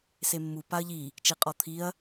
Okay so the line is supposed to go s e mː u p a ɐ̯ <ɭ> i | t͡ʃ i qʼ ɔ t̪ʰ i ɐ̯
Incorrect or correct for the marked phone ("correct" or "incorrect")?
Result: incorrect